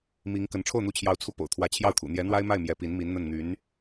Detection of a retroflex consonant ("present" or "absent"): present